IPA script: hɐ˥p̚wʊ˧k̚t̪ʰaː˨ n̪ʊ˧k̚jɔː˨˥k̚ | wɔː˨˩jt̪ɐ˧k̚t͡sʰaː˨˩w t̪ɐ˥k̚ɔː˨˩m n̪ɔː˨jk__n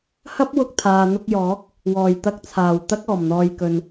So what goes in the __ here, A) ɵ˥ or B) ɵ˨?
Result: B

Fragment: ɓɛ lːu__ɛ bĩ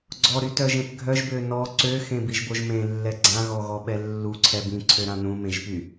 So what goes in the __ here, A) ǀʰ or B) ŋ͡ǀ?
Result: A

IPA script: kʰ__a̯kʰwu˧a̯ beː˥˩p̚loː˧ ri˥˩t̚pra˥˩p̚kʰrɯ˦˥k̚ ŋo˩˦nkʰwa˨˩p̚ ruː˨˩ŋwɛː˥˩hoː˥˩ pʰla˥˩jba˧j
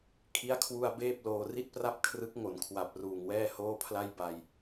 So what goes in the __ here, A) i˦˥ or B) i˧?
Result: A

